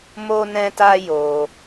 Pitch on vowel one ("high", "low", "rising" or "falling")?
high